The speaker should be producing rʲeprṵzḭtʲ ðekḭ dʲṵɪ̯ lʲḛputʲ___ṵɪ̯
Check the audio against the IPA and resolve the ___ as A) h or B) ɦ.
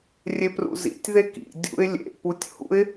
A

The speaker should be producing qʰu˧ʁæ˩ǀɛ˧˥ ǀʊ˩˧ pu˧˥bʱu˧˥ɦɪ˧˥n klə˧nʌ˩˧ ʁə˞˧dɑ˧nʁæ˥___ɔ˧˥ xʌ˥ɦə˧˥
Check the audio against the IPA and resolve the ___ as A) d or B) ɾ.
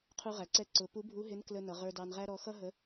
B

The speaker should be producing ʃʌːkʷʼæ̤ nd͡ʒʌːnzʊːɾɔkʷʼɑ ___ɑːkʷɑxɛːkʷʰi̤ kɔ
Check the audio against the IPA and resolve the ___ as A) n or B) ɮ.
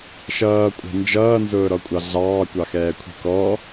B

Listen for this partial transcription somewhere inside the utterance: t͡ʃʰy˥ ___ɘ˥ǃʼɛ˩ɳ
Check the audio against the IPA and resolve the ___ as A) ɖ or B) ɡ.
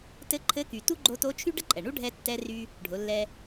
A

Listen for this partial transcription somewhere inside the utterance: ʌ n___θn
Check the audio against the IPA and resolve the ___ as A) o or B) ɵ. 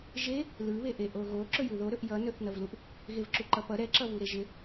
B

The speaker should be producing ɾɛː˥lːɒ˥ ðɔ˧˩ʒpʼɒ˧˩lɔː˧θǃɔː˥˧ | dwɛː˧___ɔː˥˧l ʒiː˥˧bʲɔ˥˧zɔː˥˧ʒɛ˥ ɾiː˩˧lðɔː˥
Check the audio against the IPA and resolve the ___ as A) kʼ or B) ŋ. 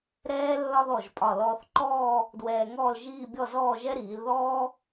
B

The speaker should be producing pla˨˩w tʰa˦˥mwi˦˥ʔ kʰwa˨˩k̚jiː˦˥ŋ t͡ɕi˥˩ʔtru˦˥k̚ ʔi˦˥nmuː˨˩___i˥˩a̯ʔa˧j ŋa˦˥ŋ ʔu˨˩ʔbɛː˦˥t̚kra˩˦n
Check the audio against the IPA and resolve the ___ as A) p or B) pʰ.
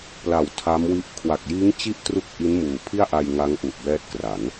B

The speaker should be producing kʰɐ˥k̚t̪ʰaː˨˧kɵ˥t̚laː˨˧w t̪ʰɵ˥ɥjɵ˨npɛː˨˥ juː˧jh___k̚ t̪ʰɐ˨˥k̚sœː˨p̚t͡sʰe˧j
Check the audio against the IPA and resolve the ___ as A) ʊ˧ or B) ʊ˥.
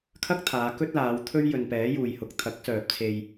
A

